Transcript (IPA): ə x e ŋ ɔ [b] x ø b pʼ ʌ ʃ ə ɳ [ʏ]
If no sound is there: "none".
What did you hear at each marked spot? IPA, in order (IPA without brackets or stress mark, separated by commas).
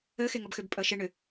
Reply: b, ʏ